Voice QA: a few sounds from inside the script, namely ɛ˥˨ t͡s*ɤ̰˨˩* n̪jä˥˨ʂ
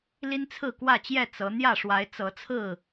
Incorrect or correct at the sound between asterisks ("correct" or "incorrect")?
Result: incorrect